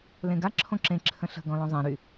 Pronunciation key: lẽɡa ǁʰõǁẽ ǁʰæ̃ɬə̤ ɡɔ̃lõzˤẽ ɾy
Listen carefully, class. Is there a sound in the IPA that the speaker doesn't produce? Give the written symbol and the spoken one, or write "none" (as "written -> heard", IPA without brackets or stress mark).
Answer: æ̃ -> ə̃